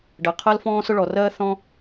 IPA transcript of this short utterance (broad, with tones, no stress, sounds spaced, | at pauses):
ɖ ɜ˩ qʰ ɜ˥ l f ɔ̃ː˥ s ʊ˥ ɭ ɔ˩ r ɜː˥ θ ɔ̃˥